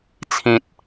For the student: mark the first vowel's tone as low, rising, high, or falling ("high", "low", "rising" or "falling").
high